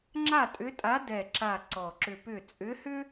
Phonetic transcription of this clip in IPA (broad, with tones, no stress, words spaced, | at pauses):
ŋ͡ǁa˥˨tʼʏ˧˥tʼa˧˥ dɛ˨˩ǁa˨˩ ǀɔ˨˩ǁʏ˧pʏ˥˨ t͡sʼʏ˧˥hʏ˥